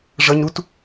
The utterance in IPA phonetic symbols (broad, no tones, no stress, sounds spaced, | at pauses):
ʐ ʌ ɲ ɾ u t